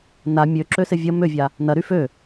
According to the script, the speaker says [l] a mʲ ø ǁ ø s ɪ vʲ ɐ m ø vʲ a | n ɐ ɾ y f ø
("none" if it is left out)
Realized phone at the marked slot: n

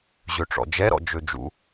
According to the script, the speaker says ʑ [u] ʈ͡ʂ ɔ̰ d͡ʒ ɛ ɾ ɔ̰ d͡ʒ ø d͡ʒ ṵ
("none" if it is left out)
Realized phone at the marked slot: ø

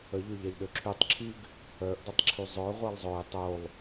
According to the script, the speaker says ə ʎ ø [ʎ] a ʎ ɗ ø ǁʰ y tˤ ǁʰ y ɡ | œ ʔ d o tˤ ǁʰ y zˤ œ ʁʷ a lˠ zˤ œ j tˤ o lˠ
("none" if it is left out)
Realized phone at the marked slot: ʎ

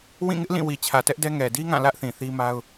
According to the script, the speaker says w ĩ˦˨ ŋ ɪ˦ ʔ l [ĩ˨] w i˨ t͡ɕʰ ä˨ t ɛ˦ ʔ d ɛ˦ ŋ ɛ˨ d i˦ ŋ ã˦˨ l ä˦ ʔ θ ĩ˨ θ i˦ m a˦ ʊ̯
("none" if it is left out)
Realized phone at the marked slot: ĩ˦˨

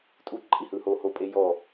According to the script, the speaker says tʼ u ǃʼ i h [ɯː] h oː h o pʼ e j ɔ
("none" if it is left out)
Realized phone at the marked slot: ɯː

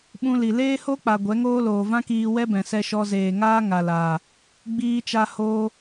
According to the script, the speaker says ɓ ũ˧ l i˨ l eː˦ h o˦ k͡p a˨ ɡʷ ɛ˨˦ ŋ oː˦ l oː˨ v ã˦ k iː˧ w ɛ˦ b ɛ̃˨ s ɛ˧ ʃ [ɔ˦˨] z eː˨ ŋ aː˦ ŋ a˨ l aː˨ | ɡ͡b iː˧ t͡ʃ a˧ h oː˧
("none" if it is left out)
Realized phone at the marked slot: ɔ˧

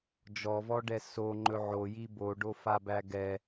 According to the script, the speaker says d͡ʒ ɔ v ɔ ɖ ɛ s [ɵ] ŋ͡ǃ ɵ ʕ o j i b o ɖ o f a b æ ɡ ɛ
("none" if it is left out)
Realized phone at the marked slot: o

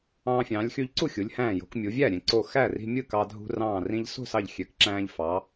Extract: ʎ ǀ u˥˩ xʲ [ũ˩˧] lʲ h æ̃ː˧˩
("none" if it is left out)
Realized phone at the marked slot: u˩˧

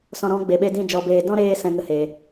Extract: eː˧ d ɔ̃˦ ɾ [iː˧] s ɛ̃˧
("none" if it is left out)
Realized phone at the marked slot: eː˧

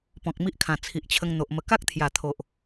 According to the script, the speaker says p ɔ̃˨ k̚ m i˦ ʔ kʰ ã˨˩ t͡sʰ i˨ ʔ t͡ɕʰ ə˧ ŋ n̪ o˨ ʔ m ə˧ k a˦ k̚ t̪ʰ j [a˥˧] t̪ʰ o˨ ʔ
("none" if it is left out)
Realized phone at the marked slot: a˨˩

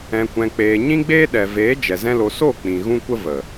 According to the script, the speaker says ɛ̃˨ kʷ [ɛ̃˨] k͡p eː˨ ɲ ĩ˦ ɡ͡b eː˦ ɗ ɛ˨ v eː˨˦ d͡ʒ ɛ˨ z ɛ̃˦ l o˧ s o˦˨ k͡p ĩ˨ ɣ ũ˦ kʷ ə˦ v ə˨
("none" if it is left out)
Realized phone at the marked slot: ɛ̃˨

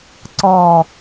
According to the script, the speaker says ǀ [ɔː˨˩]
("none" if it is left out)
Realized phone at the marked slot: ɔː˨˩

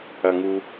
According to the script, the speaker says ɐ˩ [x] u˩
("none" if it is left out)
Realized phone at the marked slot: ŋ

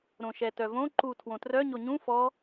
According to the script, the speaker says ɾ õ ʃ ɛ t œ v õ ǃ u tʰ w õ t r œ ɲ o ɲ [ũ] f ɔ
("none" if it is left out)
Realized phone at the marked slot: ũ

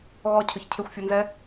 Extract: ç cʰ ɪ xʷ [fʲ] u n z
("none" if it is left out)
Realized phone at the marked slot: fʲ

